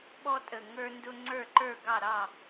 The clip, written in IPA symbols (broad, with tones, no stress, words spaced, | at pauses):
ɓɔ˦tʼə˨˩ ŋə˞˦ndʊ˦ ŋ͡ǀə˞˥˩ǃə˞˥˩ ɡɑ˥˩ɾɑ˥˩